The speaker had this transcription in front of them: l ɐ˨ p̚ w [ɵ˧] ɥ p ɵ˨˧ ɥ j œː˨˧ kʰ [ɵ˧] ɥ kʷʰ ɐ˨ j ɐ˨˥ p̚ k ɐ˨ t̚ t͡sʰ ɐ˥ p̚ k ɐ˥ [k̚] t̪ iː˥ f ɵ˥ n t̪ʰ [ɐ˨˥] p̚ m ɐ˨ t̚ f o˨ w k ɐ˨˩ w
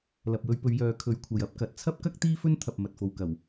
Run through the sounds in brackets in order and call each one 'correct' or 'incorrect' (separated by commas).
correct, incorrect, correct, incorrect